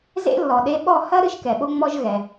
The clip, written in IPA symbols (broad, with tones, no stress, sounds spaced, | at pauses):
z ḛ˥ lː ɔ˩ ɗ e˧ ɓ ɔ˥˩ h ɐ˥ ɾ ɨ˥ ʃ k ɛ˩ ɓ o˥ ŋ͡m ɔ˥ ʒ ɣ ɛ˩